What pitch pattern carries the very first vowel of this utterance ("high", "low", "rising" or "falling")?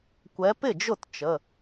rising